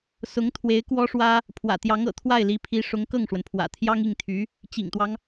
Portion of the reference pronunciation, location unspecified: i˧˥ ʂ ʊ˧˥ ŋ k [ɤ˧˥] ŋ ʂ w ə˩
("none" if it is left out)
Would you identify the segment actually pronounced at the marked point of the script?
ɤ˥˩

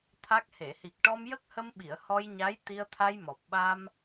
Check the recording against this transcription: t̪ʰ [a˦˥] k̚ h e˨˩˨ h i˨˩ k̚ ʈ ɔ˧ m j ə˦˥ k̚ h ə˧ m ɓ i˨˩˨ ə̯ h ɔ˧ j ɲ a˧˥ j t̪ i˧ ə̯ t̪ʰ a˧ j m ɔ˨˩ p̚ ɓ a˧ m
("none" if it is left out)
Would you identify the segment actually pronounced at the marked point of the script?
a˦˥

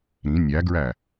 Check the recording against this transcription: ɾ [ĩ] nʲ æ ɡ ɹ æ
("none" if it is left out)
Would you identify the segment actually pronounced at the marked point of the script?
ĩ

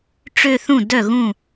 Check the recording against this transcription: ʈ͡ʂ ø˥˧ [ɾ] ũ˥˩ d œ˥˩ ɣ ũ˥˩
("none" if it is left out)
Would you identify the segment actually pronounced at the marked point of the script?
θ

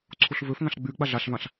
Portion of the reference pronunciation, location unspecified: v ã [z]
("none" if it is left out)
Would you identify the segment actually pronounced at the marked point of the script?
ɬ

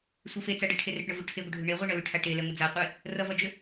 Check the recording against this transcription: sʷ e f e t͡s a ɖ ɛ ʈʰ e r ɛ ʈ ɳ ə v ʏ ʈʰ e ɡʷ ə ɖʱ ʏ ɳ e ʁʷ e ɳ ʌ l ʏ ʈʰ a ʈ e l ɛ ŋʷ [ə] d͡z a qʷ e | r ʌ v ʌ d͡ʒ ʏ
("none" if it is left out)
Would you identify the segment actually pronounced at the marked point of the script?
ə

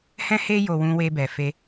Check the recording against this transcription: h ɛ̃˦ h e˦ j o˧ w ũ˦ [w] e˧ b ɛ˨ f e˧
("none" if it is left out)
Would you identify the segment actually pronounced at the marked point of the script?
w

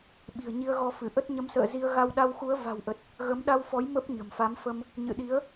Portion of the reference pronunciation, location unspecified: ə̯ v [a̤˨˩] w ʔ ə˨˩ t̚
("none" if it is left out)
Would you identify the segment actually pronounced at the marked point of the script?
a̤˨˩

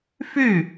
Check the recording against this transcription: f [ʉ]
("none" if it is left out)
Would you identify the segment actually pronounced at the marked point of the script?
ʉ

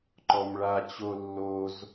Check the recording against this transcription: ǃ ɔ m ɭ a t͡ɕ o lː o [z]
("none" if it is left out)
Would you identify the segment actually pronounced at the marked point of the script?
z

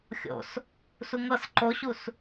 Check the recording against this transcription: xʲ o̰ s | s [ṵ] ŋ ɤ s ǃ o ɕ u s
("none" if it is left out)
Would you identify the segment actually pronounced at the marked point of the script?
u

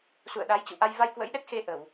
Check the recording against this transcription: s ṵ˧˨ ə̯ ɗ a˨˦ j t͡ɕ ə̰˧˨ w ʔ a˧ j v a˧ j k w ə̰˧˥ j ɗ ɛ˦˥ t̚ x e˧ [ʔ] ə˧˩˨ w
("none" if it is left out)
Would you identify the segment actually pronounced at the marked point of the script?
ʔ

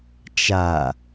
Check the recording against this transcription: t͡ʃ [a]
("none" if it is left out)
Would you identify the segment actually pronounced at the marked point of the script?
a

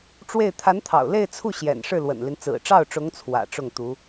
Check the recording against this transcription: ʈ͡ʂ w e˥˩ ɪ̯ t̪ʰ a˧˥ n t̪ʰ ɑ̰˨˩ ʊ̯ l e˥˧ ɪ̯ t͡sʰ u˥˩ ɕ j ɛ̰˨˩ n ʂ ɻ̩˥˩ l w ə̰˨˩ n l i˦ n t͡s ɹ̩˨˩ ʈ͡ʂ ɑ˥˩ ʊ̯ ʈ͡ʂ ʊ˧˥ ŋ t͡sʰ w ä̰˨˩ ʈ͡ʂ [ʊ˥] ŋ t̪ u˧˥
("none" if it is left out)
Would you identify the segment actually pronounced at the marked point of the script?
ʊ˥˩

